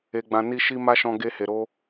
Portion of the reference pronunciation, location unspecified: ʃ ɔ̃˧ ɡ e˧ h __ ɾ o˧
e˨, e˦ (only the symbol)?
e˨